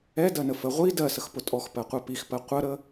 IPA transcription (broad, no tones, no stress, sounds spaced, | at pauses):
ɛ d ɜ n ə f ə ʁʷ i d ɜ s ə x p ʊ tʼ ɔ x p ɜ qʷ ɛ p i x p ɜ qʷ ə ɾ ə